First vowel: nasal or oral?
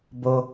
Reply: oral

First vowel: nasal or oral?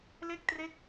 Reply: oral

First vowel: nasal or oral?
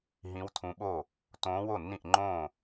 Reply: nasal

